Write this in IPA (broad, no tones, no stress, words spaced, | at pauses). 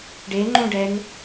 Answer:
ɖeŋ͡ǃũɖɛn